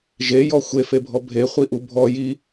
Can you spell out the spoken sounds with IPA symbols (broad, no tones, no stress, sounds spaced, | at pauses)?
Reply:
ʒ e j ɔ xʷ e f e bʱ ɔ bʱ e χʷ i ʔ u bʱ ɔ j i